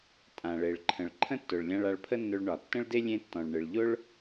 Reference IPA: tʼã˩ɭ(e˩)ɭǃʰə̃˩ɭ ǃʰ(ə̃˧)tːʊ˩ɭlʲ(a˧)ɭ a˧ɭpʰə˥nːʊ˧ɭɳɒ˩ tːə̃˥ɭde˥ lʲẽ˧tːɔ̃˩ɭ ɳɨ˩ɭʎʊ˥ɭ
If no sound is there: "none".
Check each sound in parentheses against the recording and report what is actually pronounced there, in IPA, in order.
e˩, ə̃˥, ã˧

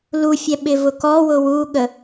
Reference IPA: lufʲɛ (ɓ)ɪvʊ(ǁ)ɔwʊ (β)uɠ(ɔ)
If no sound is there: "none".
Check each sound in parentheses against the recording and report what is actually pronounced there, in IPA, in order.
ɓ, k, w, ə

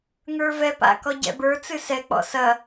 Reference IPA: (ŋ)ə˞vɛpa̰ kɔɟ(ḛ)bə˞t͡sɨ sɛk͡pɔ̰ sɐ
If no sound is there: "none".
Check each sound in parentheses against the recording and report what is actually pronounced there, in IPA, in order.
ŋ, ɛ̰

